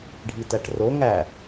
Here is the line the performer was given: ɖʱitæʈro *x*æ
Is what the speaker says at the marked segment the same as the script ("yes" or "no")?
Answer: no